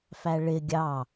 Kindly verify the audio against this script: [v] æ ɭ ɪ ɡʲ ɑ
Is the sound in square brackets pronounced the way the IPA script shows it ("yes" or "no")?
no